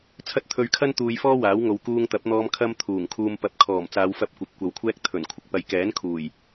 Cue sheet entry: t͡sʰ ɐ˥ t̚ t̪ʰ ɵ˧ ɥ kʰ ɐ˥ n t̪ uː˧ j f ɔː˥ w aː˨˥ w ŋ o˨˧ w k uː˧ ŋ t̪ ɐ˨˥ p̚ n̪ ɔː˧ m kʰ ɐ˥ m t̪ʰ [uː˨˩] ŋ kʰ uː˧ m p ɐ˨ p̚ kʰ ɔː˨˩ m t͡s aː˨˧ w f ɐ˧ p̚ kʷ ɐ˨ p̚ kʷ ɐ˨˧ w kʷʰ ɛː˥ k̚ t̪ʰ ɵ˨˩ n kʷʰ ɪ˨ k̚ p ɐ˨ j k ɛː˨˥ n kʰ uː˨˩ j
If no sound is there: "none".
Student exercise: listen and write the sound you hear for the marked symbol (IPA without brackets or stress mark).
uː˨˩